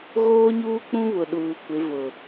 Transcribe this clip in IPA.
ɣ oː˦ ɲ uː˦ k͡p ũ˦ β ʊ˨ ɗ uː˨ kʷ ɪ˨˦ v ʊ˨

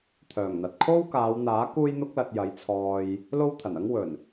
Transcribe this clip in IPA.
t̪ʰ œː˨˩ ŋ n̪ ɐ˨ t̚ kʰ o˥ w k aː˨˧ w n̪ aː˨˥ k uː˥ j n̪ ʊ˥ k̚ l ɐ˧ t̚ j ɐ˨˥ j t͡sʰ ɔː˧ j | l o˥ w t̪ʰ ɐ˨˩ n ɐ˥ ŋ w ɵ˨˩ n

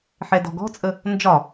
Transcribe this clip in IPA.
ħ ɛ d ɔ̤ ɡ ɔ̤ t͡sʼ ə | n d͡ʒ ɒ

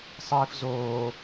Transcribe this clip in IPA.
sˤ iː f z oː

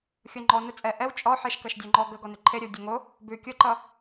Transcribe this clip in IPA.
xʲ o ŋ͡ǃ ɔ n ɵ t͡sʼ ɛ ʔ ɛ w t͡ʃʼ ɔ ħ e ʃ k ɐ ʃ dʲ o ŋ͡ǃ ɔ ɡ ə ɡ ɔ n ʉ ǃʰ e ɾʲ ɵ w dʲ ɛ ŋ o | b ʉ kʲ o ǃ ʌ

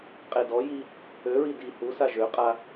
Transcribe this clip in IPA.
qʼ e d ɔ j i | ø ɹ i d i h u s a ʒ ø qʼ a

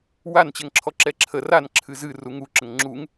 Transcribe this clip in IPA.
w a n t͡ɕ ɛ ŋ ǁʰ ɔ ǁ ɛ ǁʰ ə r a n ǁʰ ɨ z ɨ r u ŋ u ǁ ə ŋ ŋ͡ǁ u ŋ

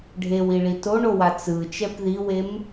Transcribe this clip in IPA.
ɖʱ e w i ɭ i t o ɳ o w a t͡s ɯ t͡ʃ ɛ p ð i w e m

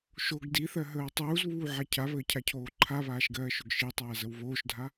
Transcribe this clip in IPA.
ʃ o ɡ d i θ ɜ ɦ əː w tˤ uː z β uː ʕ a cʰ a β əː cʰ a cʰ oː ǃʰ a β aː ʃ ɡ ɜː ʃ ɵ ɡ ʃ i tˤ aː z ə w β oː ʃ dʱ a

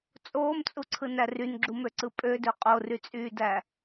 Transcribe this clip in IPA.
t͡sʼ oː m t͡sʼ u ǀʰ ɯ n æ r y n ɡ͡ǁ u m ø ǀ ɯ pʼ ø d ø qʼ o r y t͡sʼ yː d æ

